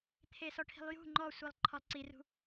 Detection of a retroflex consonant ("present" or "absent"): present